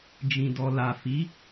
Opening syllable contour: low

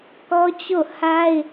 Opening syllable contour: high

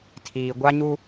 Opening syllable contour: low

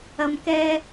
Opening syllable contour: low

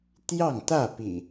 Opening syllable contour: falling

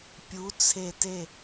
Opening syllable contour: rising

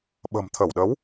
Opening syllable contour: low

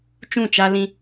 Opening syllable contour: falling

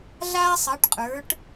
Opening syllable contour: high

